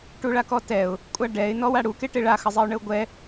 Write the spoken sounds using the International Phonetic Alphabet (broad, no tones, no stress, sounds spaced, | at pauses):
ʈ u ɭ a k ɔ t ɛ ʊ̯ | kʷʼ a ɖ ɛ ɪ̯ n ɔ w a ɽ u k e ʈ e ɭ a x ə zˤ e ʊ̯ ɳ ə ʊ̯ ɡʷ ɛ